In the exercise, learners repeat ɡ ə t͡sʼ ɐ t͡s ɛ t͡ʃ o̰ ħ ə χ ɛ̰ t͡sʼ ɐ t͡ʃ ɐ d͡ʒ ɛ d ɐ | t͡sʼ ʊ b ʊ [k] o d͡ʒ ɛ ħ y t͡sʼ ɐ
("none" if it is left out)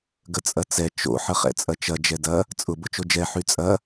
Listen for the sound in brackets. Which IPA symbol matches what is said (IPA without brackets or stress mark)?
t͡ʃ